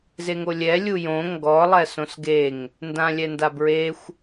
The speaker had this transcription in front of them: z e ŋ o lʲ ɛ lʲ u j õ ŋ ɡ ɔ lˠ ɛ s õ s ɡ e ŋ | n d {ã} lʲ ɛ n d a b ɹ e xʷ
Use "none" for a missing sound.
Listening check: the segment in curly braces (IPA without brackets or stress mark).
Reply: ã